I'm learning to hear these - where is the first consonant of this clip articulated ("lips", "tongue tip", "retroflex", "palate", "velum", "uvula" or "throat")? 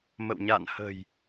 lips